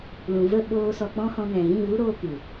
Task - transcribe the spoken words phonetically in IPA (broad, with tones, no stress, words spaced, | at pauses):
lũ˨və˦˨ɓoː˧ sɔ˧k͡pɔ̃˦ hɔ̃˧ŋɛ̃˨ɣĩ˦˨ vu˦ɾoː˧ kɨ˨